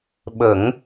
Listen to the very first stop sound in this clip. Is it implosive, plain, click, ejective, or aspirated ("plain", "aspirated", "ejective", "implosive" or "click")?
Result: implosive